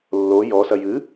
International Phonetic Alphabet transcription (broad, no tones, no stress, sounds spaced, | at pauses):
lː o j ɔ s ɐ j ɨ